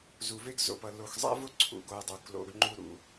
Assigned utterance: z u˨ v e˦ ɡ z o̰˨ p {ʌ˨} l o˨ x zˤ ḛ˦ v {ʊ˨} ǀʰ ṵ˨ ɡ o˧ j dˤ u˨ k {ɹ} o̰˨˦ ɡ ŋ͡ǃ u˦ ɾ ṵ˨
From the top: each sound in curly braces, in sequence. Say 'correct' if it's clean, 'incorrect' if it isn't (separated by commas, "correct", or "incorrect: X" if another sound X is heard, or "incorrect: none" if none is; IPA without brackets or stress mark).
correct, incorrect: ʊ˦, incorrect: l